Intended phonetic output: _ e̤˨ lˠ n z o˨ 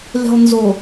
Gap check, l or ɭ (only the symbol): l